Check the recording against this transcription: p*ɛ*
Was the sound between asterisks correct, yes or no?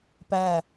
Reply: no